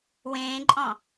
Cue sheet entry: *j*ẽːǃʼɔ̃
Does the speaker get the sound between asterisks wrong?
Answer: yes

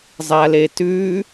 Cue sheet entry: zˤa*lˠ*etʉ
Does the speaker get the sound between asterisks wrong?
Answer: yes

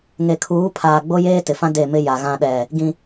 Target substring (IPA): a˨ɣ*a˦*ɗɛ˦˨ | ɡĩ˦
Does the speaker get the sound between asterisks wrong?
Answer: yes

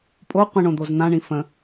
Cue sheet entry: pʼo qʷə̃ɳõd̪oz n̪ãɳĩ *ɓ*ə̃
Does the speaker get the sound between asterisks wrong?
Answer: yes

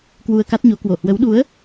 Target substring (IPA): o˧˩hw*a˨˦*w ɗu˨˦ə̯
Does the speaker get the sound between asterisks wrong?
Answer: yes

